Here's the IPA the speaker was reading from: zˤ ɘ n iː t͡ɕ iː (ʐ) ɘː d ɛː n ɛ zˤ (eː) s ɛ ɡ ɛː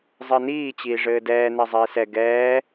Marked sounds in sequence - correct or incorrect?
correct, incorrect: iː

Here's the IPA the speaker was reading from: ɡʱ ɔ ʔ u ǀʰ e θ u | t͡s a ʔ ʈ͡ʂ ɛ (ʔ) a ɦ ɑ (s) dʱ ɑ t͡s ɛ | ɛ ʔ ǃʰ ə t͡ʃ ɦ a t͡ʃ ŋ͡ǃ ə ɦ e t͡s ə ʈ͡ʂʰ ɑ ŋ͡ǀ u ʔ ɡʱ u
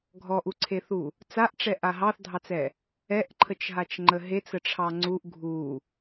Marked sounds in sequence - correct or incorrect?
correct, incorrect: θ

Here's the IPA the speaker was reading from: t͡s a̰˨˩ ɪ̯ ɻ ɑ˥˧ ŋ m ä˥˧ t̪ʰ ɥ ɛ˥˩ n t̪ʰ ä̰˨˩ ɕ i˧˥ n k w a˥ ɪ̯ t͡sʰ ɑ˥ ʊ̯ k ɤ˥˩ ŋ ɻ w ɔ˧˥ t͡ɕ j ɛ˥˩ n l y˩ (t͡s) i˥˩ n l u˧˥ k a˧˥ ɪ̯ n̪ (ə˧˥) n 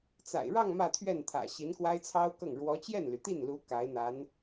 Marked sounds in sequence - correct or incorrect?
incorrect: t̪, incorrect: a˧˥

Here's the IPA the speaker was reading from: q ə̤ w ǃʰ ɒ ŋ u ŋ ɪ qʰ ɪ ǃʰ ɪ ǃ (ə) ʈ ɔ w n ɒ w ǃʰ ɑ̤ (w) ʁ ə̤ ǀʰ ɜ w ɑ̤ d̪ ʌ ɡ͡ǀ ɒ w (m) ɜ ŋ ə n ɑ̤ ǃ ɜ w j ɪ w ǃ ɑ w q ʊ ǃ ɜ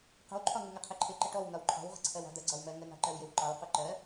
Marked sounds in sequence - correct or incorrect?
correct, correct, correct

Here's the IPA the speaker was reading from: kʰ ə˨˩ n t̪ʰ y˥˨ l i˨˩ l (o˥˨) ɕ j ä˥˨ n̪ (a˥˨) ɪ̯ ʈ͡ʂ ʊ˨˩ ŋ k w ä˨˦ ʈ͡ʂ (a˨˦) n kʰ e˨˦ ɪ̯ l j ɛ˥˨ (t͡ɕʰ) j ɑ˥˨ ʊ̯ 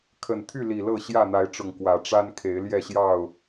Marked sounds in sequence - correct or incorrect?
incorrect: ɤ˥˨, incorrect: a˨˦, incorrect: a˦, incorrect: ɕ

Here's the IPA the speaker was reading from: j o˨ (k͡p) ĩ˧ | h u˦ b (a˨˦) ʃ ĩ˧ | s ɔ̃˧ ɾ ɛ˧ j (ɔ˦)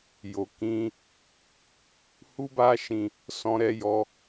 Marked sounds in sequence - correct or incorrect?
incorrect: k, incorrect: a˦, incorrect: ɔ˧

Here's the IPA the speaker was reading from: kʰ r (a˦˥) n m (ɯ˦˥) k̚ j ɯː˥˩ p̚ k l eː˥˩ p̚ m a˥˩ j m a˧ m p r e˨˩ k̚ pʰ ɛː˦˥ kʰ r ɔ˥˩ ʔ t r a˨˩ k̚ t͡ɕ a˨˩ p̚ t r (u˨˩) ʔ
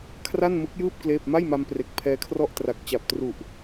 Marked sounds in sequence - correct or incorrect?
incorrect: a˥˩, correct, correct

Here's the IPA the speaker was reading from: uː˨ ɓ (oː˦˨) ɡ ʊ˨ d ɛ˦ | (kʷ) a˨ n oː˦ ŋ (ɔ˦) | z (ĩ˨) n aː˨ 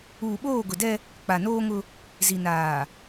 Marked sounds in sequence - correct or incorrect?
correct, incorrect: k͡p, incorrect: ʊ˦, incorrect: i˨

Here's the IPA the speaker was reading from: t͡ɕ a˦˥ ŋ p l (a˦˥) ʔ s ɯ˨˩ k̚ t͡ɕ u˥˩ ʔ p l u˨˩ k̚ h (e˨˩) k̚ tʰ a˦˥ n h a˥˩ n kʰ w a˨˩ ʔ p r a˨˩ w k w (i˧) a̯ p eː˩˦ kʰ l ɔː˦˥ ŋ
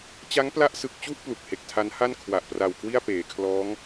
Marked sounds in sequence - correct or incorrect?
correct, correct, incorrect: i˥˩

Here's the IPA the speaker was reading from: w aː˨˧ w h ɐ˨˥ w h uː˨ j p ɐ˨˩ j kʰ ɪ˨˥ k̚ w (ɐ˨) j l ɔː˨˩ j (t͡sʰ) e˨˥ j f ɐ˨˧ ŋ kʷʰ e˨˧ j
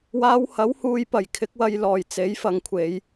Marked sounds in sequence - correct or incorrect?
correct, incorrect: t͡s

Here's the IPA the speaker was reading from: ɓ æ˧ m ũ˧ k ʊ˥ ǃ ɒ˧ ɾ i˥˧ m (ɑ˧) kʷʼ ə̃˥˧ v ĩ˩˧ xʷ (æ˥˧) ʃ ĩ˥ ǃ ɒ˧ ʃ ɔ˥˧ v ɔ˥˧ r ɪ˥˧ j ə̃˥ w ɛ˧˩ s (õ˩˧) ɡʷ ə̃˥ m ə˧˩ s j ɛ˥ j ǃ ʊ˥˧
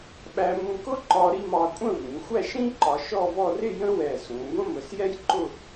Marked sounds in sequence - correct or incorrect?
correct, correct, incorrect: ũ˩˧

